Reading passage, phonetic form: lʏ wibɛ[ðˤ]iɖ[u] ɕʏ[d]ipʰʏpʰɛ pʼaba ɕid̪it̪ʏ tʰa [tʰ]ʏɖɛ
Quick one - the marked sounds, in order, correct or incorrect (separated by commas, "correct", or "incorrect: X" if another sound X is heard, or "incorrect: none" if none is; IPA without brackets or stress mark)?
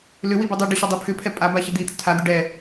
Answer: incorrect: dˤ, incorrect: ʏ, incorrect: dˤ, incorrect: d̪